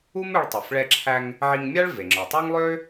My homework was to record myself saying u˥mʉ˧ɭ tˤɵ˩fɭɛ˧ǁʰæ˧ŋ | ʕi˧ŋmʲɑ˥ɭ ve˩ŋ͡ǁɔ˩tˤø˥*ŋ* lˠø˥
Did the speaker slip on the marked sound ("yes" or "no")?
no